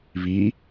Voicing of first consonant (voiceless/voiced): voiced